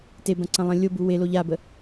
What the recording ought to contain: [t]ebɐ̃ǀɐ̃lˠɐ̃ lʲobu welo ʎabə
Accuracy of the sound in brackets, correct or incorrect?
correct